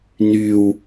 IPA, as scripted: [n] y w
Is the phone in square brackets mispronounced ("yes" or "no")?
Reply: no